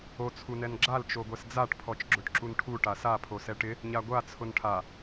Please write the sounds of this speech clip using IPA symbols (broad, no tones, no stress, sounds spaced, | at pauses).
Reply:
o t͡sʰ u n ɛ n ɡ͡ǁ a l t͡ʃ o ɡʷ ɛ s d͡z a ʈ pʰ ɔ t͡ʃ ɡ͡ǁ ʊ ʈ ǁ u n ʈʰ u ʈ a s a pʰ o s ɛ ʈ ɪ | ɲ a ɡʷ a t͡sʰ ʊ n ʈʰ a